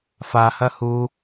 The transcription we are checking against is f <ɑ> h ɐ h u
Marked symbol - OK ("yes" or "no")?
no